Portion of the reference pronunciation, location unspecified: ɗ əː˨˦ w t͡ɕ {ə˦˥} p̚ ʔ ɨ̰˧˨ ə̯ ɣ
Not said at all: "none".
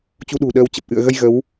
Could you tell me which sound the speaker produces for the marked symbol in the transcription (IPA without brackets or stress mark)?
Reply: ə˨˩